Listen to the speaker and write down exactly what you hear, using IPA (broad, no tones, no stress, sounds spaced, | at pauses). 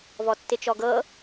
v ɔ tː ɪ t͡ʃ ɔ ɡ ɤ